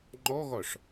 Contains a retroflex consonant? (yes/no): yes